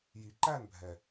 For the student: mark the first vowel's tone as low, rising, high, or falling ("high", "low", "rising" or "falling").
low